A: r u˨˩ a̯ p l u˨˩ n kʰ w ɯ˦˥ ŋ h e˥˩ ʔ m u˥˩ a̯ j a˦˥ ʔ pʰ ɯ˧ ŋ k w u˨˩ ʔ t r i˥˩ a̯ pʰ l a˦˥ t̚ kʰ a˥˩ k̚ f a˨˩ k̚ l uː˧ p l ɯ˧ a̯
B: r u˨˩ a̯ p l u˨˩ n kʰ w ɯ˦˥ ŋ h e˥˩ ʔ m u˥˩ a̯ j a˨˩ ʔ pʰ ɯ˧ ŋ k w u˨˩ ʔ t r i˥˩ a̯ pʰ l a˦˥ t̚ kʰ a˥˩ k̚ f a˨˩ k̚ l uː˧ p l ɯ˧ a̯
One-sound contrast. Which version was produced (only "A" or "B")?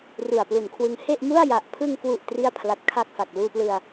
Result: B